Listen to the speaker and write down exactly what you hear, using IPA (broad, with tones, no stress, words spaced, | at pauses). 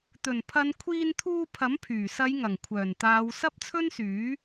t̪ɵ˨˩npʰɐ˨˧n kʷʰiː˧nt̪ʰuː˧ pʰɐ˨˥mpʰyː˨˩sɐ˨˧jŋɐ˨˩ŋ kʷʰœː˨˩nt̪aː˨˧w sɐ˥p̚t͡sʰɵ˥nsyː˨˥